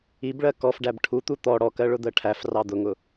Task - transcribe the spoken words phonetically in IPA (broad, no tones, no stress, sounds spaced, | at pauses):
i b ɭ ɜ k ɔ f ɖ æ b ʈʰ u t̪ u t̪ ɔ ɽ ɔ k ɜ ɭ ʊ d̪ ɜ ʈʰ æ f r ɑ d̪ ʊ ŋ ʊ